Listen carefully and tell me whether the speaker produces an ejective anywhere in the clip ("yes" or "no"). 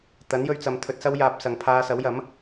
no